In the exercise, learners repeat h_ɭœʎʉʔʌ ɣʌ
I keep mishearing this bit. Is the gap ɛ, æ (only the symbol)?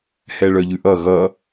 ɛ